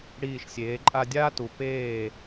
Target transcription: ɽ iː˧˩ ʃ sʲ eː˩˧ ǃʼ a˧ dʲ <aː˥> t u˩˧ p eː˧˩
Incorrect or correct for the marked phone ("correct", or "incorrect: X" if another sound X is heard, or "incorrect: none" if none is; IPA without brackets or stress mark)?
correct